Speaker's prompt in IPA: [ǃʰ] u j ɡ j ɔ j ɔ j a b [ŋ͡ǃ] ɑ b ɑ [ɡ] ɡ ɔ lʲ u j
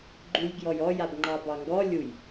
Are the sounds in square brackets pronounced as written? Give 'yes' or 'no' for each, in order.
no, yes, no

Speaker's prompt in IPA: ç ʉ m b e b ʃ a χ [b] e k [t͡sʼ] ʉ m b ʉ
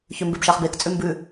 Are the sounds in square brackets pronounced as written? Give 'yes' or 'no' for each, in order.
yes, yes

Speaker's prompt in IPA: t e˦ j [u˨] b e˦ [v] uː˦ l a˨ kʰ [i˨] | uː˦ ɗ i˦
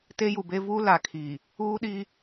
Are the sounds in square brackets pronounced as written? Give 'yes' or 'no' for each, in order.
yes, yes, yes

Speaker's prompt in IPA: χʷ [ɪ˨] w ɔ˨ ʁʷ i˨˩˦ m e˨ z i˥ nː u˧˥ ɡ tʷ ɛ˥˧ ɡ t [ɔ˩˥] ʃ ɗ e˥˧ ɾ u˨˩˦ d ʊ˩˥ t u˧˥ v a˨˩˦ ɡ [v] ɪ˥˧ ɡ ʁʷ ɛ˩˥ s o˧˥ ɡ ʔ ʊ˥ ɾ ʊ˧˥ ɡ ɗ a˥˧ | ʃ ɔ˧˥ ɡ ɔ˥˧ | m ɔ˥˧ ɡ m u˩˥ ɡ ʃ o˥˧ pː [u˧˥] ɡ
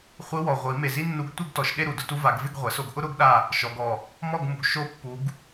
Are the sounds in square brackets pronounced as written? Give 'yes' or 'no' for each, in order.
no, no, yes, yes

